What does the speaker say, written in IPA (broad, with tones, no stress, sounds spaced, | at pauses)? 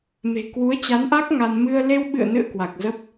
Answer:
m e̤˨˩ k w u˨˦ ə̯ t͡ɕ a˨˦ n ʔ a˦˥ k̚ ŋ a˧ n m ɨ˧ ə̯ l e˧ w ɓ ɨ̰˧˨ ə̯ n ɨ̰˧˨ ə̯ k w a˨˩ k̚ z ə˦˥ p̚